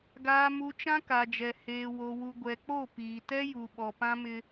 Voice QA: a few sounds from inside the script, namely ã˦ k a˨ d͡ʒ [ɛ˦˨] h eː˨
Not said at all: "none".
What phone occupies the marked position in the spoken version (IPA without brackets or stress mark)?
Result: ɛ˨